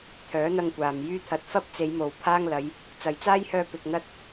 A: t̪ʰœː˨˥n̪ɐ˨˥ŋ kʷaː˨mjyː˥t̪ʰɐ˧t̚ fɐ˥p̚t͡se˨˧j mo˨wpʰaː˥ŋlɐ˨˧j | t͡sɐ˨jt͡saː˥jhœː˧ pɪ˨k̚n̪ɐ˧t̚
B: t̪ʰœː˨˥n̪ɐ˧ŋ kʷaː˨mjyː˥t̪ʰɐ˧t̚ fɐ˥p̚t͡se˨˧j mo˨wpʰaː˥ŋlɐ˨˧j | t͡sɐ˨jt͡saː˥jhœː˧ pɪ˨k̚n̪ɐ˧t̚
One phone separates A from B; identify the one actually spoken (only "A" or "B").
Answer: B